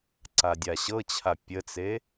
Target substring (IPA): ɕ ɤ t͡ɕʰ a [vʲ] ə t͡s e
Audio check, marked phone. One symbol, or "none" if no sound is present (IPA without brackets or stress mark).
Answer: pʲ